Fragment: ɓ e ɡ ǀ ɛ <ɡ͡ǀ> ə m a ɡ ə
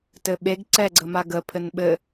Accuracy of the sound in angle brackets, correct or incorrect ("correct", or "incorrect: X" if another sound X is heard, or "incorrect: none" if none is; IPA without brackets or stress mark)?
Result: correct